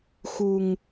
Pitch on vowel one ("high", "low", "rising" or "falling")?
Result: low